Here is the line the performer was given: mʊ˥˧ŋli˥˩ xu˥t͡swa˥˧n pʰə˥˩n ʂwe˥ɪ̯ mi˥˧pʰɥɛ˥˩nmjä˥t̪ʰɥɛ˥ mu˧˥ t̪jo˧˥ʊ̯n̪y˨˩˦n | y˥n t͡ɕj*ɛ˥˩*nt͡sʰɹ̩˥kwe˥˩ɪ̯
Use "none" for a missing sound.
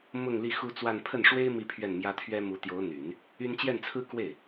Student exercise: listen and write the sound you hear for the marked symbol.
ɛ˥˩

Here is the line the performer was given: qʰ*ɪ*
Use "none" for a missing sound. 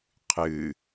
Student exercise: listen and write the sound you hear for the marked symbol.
ɨ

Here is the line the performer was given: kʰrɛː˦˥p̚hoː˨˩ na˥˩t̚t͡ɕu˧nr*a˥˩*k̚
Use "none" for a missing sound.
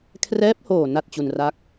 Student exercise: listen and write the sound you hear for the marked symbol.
a˥˩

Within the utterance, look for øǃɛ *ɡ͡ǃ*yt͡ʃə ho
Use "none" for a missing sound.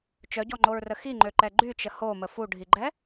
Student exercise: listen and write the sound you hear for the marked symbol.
ɡ͡ǃ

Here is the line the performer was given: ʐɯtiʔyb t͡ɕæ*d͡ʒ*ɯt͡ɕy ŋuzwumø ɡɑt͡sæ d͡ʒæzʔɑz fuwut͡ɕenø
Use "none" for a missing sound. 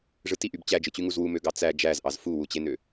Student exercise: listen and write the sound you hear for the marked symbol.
d͡ʒ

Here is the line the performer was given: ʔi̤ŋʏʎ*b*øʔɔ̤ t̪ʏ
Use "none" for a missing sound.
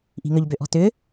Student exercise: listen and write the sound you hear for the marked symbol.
b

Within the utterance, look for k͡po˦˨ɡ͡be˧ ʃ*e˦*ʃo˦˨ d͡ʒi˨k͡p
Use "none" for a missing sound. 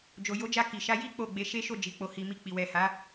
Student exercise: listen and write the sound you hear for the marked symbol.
e˦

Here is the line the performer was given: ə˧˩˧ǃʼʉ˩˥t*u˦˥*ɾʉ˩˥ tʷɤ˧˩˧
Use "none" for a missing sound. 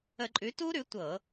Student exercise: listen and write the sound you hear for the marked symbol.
u˦˥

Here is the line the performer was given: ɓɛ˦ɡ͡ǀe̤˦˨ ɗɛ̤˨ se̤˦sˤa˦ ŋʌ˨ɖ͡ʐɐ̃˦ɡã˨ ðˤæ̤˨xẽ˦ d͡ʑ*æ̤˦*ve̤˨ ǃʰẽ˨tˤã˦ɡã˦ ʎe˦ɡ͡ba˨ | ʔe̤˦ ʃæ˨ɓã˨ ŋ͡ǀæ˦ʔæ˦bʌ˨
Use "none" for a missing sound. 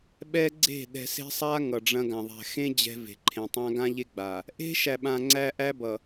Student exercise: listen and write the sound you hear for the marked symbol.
ɛ̤˦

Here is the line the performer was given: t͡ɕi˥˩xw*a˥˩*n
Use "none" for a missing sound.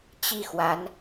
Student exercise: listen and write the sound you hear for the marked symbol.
a˧˥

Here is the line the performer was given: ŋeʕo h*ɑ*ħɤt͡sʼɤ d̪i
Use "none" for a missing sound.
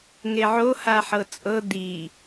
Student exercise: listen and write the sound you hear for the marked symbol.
a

